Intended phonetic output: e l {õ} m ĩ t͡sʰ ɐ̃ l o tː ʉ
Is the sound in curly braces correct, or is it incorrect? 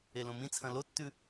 correct